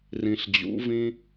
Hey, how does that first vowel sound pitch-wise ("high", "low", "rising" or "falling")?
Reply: high